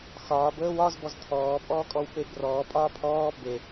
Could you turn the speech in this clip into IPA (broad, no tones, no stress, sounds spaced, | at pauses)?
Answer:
x ɒː b əː w ɒ z b ɔ z t̪ʰ ɔː pʼ ɔː kʼ ɔ w p e b r ɔː pʼ ɒː pʰ ɔː b e